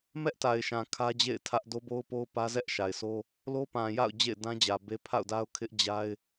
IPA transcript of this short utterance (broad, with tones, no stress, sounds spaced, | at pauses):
m ɛ˦ ʔ t a˨ ɪ̯ ʃ ã˨ kʰ ä˦ d͡ʑ ḛ˦˨ ɪ̯ tʰ ä˦ ʔ d o˦ b o˦ ʊ̯ p o˦ ʊ̯ p ä˦ z ɛ˦ ʔ ʃ a˨ ɪ̯ sʰ o˦ | l o˦ p ã˨ j a̰˦˨ ʊ̯ d͡ʑ ḛ˦˨ ɪ̯ d ã˦ d͡ʑ ä˨ b e˦ pʰ a̰˦˨ ʊ̯ d a˦ ʊ̯ kʰ ɪ˦ ʔ d͡ʑ a˦ ɪ̯